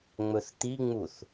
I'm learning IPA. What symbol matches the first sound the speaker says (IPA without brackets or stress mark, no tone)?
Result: ŋ͡m